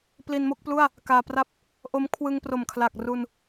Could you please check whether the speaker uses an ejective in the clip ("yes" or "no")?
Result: no